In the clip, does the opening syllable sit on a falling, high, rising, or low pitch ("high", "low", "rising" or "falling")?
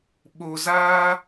low